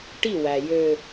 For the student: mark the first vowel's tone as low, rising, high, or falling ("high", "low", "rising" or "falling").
falling